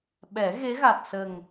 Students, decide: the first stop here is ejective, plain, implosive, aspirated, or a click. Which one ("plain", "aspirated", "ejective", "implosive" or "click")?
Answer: implosive